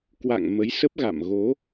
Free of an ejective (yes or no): yes